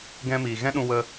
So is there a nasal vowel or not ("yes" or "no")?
yes